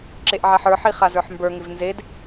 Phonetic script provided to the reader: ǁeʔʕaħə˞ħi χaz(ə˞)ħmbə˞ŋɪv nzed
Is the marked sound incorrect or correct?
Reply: correct